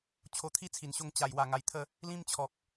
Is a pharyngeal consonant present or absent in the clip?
absent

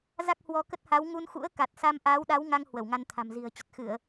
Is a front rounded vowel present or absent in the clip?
absent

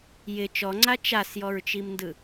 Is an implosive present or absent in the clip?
absent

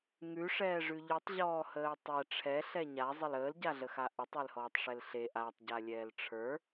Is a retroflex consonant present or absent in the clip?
present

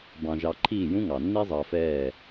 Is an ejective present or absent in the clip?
absent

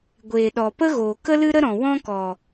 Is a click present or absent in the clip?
absent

